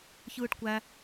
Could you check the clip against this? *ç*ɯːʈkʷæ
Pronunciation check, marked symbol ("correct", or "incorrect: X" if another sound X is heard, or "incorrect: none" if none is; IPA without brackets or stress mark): correct